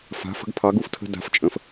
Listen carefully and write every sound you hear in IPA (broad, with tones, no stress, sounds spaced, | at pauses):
f a̤˨˦ f ə̤˨˦ ɡ pʰ ɑ˨˦ ɡ u˩˧˩ f tʰ ə̤˦ d a̤˨˦ f t͡ʃʼ ə̃˨˦ f